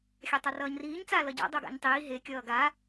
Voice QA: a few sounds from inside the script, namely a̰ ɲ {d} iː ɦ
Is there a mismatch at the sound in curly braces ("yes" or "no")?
yes